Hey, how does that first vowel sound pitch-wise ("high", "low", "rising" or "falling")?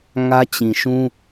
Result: high